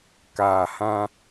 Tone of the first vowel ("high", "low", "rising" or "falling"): low